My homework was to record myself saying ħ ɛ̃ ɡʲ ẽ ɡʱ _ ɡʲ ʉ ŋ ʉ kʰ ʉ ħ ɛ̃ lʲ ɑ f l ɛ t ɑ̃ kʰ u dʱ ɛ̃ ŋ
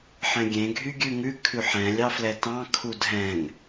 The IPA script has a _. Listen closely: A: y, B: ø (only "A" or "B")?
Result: A